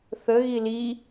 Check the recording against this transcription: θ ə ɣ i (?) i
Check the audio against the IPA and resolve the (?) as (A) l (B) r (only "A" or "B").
A